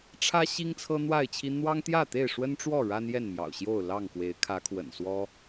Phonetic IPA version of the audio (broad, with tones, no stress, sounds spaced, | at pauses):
ʈ͡ʂʰ ä˦ ɕ i˦ ŋ t͡sʰ ɤ˦ n̪ w a˥˨ ɪ̯ t͡ɕʰ i˦ n̪ w ɑ˦ ŋ t̪ j ä˥˨ t̪ e˥˨ ɪ̯ ʂ w ə˦ n ʈ͡ʂ w ɔ˥˨ ɻ a˦ n j ɛ˥˨ n m j ɑ̰˨˩ ʊ̯ ɕ j o˥˨ ʊ̯ l ɑ˥˨ ŋ k w e˨˦ ɪ̯ kʰ ä˨˦ kʰ w ə̰˨˩ n s w ɔ˦